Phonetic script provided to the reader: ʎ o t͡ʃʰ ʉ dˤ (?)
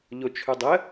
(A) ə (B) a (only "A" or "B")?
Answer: A